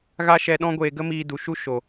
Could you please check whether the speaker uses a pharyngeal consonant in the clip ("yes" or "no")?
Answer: no